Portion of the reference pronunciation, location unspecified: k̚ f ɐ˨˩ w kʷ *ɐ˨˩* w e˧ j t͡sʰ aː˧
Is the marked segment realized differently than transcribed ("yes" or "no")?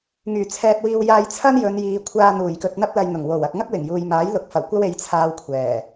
yes